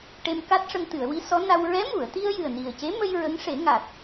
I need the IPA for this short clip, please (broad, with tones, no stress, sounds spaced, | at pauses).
ʈ e˧ m k a˦˥ t̚ ʂ ə˧ ŋ t̪ ɨ˨˩˨ ə̯ w i˧˥ s ɔ˧˥ n a˧ w ɹ ɛ˧˥ m u˨˩˨ ə̯ t̪ i˧ ə̯ j ɨ˨˩ ə̯ n i˨˩ ə̯ c e˧˥ m ə˧ j ɹ ə˧˥ ŋ ʂ e˨˩˦ ŋ a˨˩ t̚